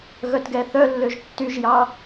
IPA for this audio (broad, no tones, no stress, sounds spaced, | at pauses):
ɣ œ t ɡ ɛ θ œ lː ø ʒ tː y ʒ j ɑ